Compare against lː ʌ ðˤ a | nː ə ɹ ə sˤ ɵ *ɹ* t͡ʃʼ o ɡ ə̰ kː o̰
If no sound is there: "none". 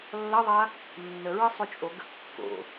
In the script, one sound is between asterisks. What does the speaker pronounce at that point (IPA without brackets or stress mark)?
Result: none